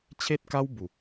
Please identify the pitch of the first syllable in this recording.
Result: high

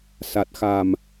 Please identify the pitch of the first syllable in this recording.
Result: low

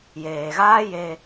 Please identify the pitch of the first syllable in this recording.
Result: low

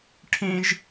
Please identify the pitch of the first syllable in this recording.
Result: high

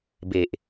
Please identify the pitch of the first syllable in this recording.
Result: low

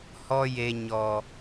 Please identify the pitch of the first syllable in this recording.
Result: high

